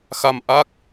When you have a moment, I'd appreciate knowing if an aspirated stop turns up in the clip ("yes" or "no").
no